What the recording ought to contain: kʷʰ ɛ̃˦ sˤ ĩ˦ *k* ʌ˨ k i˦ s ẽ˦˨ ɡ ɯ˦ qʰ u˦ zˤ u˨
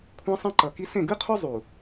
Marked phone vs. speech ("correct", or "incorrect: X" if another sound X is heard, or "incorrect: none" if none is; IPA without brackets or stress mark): incorrect: ǃ